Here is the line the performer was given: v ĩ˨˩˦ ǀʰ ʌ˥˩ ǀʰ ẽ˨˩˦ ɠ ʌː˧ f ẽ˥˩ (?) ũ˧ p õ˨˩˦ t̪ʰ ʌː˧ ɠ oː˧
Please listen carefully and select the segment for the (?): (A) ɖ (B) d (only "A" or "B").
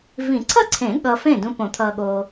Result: B